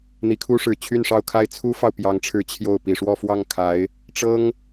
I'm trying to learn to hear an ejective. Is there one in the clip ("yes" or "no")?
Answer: no